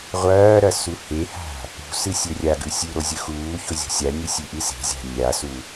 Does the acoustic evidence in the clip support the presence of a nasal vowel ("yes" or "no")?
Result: no